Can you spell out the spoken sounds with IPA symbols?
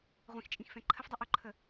ʁʷ ĩ x t͡ʃʼ ĩ x f ɛ̃ ǃʰ ə f dˤ i ʔ ʊ ǃʰ ə

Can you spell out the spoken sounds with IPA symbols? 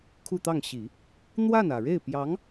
kʰ u˥˧ t̪ ɑ˥˩ ŋ ɕ i˨˩˦ | n̪ w a˥˩ n ä˨˩ ɻ e˥˩ ɪ̯ p j ɑ˧˥ ŋ

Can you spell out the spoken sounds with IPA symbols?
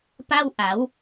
p a˥˩ w ʔ a˩˦ w

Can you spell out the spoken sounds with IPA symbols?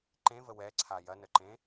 ǃ ẽ v ə w ɛ ǀʰ a j ɐ n ə ǃ ẽ

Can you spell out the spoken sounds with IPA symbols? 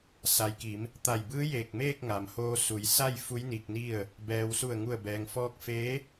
s a˩ j k i˩˧ m | t̪ a˧˩ j b ɯː˧˥ j eː˧˩ k̚ m eː˥˨ k̚ ŋ a˩ m h oː˧ s u˩˧ j s a˥˨ j f u˧˥ j n i˧ k̚ n i˥˨ ə̯ | b ɛː˩ w s u˧˩ ə̯ ŋ u˧˩ ə̯ b ɛː˩ ŋ f ɔː˧ k̚ f eː˧˥

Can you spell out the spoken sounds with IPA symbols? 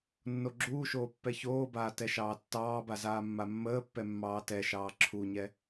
nː o ɡ͡ǁ uː ʃ oː pː ɛ ç oː b aː t ɛ ʃ ɑː tː ɑː b a z aː mː a mː əː pː ɛ mː ɑː t ɛ ʃ ɑː ǁʰ u ɲ ɛ

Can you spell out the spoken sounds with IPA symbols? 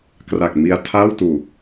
k r a˨˩ k̚ m i˧ a̯ tʰ aː˥˩ w t uː˨˩

